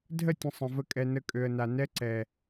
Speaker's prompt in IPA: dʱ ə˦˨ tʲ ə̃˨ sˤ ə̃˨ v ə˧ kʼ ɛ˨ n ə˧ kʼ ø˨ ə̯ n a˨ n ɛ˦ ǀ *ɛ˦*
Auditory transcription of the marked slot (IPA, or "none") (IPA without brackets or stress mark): ɛ˨